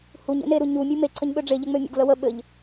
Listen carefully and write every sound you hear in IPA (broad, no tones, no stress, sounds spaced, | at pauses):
h u ɲ ḛ n e ɾ u ɲ u mʲ u m e ǀʰ ə ɲ ɓ ø ɖ͡ʐ e ʎ ɘ ŋ͡m ø mʲ ə̰ ɡ l ə w ə ɓ ɘ ʎ